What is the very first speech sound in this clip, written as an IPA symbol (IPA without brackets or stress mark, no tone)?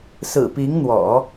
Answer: s